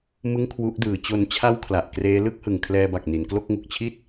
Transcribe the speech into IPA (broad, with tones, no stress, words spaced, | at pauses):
mɯ˥˩ŋkʰwu˦˥ʔdɯː˩˦ t͡ɕo˧nt͡ɕʰa˥˩w kʰla˨˩ʔ kreː˦˥lɯ˥˩k̚hɯ˨˩ŋ kʰlɛː˧ba˨˩k̚ ni˩˦nklo˥˩k̚ŋu˨˩k̚ t͡ɕʰi˥˩t̚